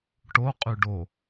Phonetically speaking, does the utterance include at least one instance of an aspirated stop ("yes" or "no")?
no